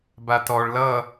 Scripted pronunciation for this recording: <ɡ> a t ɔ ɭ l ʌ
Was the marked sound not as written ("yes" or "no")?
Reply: yes